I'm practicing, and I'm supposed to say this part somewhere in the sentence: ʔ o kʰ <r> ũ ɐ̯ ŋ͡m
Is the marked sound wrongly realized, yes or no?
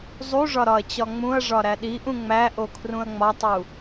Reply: no